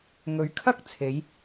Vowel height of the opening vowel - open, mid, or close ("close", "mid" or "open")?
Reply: mid